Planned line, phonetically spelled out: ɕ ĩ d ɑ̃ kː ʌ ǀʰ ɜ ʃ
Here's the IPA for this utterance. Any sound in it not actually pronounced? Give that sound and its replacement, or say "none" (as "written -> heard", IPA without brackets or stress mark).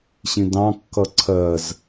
ʃ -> z